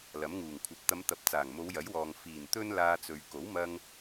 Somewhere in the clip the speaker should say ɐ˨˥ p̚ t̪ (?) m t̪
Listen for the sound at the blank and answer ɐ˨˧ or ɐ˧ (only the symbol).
ɐ˨˧